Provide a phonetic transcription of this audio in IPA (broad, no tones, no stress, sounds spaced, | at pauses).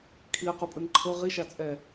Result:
kʰ i ə̯ q u pʼ ɯ n ǃʰ ɤ ʁ i ʃ a t͡sʼ ɛ